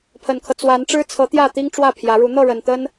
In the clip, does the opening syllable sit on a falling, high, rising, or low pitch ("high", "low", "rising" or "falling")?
low